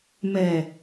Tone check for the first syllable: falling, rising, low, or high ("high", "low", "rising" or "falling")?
low